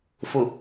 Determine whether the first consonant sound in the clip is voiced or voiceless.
voiceless